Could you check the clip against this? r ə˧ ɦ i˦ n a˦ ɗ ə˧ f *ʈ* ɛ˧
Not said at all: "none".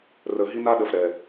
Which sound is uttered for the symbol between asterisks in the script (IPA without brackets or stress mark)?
ɾ